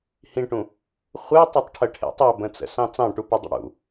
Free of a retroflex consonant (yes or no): no